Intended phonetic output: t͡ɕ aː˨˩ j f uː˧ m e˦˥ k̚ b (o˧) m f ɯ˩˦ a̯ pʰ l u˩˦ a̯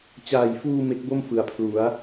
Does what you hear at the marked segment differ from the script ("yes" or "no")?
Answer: yes